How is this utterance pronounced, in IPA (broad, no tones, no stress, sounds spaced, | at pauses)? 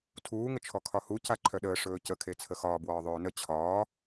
tʰ uː ŋ ə t͡ʃʰ ɔ kʰ ɒ h u c a ǃʰ œ ɗ əː ʂ ɵː c ə kʰ e t͡sʰ ə x ɒː b w ɒː ðˤ ɵː n ə t͡ɕʰ ɒː